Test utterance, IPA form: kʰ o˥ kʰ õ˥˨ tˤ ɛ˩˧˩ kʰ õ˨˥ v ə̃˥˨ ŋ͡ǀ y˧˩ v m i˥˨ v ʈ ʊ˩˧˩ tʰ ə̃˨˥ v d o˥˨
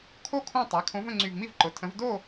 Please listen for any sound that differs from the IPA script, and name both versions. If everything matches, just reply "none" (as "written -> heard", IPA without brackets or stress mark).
ʈ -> ǃ